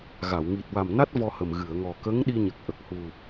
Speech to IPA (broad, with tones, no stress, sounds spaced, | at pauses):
ɣ a˨˩˨ w ŋ i˨˩ t̚ w a˨˩ m n a˦˥ t̚ v ɔ˧ h ə˨˩ m ɣ ɨ˨˩˨ ə̯ ŋ ɔ˨˩ k ə˧˥ ŋ ɗ i˧ ɲ ə˨˩ k̚ ʔ ə˨˩ k̚ h u˨˩